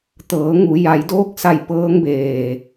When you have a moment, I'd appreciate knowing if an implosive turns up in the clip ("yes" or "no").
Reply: no